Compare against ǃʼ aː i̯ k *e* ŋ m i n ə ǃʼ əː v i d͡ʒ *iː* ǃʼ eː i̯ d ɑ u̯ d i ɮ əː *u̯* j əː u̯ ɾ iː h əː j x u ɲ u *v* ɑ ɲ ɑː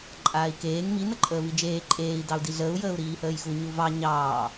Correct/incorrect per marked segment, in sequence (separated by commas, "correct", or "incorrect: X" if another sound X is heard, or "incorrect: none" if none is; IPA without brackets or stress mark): incorrect: eː, incorrect: eː, correct, correct